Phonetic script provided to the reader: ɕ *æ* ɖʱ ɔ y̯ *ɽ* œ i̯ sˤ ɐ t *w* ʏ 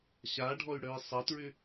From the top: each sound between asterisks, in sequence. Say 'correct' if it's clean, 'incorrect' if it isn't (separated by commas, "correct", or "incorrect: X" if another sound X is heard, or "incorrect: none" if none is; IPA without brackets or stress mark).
incorrect: a, correct, incorrect: ɹ